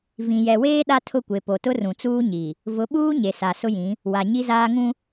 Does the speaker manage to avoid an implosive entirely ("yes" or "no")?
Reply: no